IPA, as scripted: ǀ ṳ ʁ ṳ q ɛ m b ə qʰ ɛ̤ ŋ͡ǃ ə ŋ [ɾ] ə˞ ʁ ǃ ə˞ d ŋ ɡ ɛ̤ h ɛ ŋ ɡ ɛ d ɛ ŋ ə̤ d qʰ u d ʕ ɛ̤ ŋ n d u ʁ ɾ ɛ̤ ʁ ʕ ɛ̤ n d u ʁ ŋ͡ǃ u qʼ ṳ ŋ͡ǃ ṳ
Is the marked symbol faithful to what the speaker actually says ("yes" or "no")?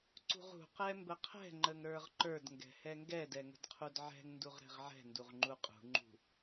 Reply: yes